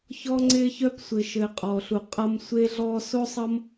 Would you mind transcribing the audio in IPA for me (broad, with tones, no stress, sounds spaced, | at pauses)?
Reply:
ç ɔ˦ ŋ͡ǀ ɪ˦ ç œ˧ p sʷ ɪ˨ ʃ ɘ˨ qʼ ɔ˨ ɬ u˨ qʼ ʌ˧ m sʷ e˧ ɮ ɔ˧ s o˦ sˤ ʌ˦ m